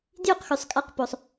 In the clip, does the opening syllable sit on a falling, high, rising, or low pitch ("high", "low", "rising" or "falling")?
high